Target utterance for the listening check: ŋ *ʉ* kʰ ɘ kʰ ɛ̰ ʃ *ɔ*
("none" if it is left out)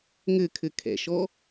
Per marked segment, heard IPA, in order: ɘ, ɔ

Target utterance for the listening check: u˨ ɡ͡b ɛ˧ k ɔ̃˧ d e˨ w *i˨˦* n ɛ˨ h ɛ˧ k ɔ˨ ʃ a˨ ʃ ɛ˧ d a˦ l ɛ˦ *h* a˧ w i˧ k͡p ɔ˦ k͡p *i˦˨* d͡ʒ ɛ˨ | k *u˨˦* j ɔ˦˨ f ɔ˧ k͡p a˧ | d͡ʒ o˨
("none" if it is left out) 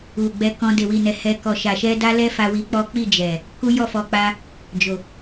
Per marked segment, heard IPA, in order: i˨, f, i˦˨, u˦

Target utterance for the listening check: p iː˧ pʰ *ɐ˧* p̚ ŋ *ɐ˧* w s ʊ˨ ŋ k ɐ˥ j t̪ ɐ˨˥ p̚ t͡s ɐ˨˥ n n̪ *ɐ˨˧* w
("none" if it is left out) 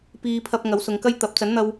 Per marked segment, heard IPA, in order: ɐ˧, ɐ˨˥, ɐ˧

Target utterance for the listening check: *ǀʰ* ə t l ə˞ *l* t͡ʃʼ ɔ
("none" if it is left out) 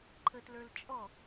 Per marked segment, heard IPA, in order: ǃʰ, l

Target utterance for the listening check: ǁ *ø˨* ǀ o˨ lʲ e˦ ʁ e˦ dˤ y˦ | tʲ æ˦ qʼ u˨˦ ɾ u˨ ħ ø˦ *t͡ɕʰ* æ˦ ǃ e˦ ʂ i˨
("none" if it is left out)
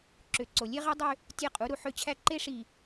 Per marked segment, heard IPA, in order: ø˨, t͡ɕʰ

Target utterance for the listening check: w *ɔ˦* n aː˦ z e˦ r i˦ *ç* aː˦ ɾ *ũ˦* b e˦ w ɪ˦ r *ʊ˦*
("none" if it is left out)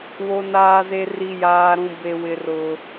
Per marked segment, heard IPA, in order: o˦, j, ũ˦, ʊ˦

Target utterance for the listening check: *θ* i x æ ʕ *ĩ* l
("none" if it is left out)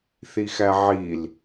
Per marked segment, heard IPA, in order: θ, i

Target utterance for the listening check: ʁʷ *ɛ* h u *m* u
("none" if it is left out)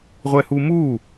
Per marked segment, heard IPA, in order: ɛ, m

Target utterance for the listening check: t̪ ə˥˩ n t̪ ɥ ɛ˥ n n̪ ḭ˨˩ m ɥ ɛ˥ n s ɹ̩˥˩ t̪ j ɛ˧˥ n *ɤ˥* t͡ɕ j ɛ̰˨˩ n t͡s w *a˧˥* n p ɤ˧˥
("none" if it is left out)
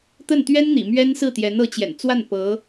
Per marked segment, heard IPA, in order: ɤ˧˥, a˥˩

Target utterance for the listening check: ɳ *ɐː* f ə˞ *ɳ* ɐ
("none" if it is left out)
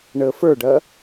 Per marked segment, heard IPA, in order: əː, ɖ

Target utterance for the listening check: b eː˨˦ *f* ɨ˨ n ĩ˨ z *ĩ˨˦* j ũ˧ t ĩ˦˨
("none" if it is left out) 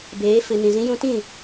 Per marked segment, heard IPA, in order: f, ĩ˨˦

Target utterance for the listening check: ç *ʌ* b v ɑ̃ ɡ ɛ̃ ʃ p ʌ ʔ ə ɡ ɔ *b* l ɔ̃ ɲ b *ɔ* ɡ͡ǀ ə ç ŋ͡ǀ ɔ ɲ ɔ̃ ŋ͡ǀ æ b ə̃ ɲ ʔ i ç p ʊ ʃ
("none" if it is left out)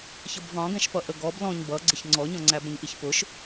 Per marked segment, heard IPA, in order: ʌ, b, ʌ

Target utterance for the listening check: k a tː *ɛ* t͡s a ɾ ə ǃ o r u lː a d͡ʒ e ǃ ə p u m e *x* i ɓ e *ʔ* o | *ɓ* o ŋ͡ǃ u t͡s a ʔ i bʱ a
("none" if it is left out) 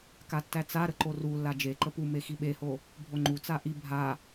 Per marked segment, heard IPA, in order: æ, x, h, bʱ

